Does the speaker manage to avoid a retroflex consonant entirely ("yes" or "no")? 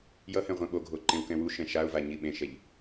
yes